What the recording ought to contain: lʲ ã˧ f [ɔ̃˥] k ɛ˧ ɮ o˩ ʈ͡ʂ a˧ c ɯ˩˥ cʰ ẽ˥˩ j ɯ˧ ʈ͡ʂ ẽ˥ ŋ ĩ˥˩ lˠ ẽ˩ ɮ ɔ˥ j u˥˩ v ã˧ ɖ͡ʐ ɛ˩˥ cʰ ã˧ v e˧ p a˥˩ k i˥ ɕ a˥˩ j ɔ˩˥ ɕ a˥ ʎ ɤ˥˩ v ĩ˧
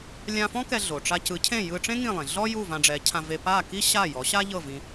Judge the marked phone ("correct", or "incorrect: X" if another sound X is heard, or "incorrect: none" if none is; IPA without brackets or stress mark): correct